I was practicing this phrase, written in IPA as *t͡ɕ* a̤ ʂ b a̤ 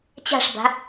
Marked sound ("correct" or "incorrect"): correct